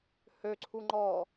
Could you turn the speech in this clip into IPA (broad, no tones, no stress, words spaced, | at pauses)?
høǀʰu ŋ͡ǃɔ